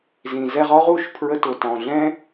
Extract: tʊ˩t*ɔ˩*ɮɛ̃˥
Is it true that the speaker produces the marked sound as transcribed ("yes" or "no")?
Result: no